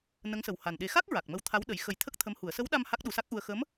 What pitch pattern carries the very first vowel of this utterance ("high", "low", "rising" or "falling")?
rising